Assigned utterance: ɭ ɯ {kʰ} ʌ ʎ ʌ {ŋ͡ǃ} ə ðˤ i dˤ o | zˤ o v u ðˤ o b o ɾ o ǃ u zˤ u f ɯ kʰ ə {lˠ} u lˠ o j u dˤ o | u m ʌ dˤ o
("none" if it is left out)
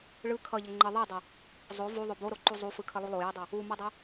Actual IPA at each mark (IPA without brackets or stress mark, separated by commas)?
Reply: kʰ, ŋ͡ǃ, lˠ